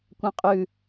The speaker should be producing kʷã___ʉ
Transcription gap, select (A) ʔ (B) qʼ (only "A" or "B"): B